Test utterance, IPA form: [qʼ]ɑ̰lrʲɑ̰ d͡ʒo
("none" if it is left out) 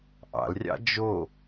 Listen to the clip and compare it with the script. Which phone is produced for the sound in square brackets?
ʔ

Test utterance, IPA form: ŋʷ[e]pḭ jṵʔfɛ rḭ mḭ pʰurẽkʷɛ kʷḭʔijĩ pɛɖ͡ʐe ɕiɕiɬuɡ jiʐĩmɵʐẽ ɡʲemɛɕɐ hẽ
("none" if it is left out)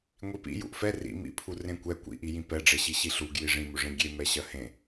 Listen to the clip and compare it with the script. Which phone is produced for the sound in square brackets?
i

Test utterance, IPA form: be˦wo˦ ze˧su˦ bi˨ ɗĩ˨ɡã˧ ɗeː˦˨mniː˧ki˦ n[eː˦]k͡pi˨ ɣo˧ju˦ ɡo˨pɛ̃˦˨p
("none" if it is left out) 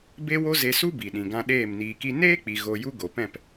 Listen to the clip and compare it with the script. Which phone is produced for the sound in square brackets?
eː˦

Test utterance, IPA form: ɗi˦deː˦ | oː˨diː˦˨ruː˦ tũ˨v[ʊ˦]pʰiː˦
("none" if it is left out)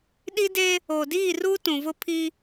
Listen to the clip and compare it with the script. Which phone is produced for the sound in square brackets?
ʊ˦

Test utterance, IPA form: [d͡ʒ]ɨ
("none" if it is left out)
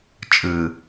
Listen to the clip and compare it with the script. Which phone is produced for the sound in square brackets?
t͡ʃʼ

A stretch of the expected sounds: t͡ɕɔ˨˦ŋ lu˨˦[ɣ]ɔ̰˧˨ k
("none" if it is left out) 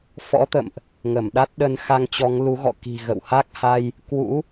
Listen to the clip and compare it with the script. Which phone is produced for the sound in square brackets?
ɣ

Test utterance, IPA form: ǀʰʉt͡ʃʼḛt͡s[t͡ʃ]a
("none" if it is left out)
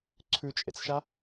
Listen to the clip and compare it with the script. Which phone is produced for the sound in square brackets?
ʃ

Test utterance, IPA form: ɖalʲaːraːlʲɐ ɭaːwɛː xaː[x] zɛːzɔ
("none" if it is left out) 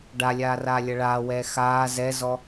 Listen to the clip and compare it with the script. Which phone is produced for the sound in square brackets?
none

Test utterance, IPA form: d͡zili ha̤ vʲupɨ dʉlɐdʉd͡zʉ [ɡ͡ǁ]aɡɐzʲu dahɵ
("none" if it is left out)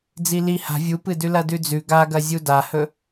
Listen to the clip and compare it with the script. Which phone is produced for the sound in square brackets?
ɡ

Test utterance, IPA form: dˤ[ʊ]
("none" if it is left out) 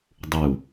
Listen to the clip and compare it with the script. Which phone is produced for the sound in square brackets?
u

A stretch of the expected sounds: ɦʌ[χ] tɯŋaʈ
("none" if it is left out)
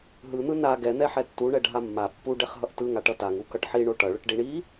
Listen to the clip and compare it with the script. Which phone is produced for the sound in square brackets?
ʔ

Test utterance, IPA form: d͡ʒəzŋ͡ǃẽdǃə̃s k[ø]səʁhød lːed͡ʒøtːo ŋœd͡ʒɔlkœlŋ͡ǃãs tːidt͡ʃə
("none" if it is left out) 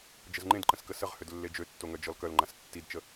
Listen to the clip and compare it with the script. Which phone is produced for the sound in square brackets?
ə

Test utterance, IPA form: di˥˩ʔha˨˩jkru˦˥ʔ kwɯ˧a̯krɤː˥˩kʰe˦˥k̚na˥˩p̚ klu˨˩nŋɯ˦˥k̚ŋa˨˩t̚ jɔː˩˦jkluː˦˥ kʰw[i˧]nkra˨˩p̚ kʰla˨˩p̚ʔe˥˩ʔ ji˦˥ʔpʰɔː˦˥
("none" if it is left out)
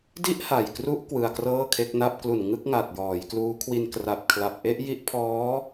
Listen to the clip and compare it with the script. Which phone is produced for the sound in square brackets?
i˧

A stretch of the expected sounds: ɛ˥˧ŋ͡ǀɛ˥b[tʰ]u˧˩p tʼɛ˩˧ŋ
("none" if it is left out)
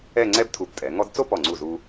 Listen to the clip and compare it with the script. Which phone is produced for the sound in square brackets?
tʰ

